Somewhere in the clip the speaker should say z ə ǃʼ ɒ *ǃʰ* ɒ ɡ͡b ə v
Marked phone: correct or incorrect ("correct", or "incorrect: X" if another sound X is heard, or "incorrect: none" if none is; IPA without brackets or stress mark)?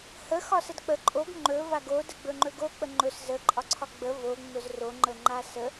incorrect: ǀʰ